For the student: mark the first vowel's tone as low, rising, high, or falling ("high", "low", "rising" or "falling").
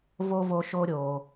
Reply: high